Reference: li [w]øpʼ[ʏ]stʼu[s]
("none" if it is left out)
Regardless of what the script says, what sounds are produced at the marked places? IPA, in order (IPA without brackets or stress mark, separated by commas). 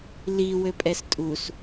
w, ɛ, s